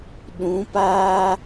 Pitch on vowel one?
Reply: rising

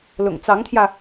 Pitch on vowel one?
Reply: low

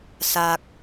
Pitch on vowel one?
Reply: low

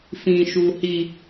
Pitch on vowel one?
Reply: high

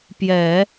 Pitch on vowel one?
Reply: low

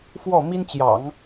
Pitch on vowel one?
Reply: falling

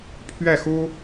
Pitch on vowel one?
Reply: falling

